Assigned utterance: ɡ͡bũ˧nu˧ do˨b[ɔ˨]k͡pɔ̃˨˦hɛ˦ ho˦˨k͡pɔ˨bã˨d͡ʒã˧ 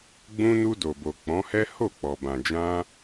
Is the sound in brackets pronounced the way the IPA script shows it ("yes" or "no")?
no